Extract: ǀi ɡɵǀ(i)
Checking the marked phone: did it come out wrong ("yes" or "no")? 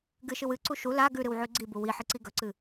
yes